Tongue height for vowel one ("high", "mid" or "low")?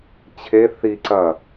mid